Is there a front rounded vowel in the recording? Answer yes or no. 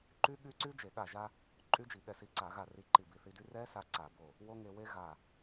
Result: yes